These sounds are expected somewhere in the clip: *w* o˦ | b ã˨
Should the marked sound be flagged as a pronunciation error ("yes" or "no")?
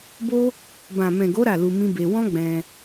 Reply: yes